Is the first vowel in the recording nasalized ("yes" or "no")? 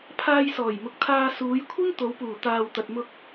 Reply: no